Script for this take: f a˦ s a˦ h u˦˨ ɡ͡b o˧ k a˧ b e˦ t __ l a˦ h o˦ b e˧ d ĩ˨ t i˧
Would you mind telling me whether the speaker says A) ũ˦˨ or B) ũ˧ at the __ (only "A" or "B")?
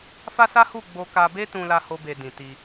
B